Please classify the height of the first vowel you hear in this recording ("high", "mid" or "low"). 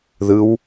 high